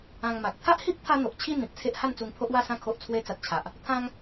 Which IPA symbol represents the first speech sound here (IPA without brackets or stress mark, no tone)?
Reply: ã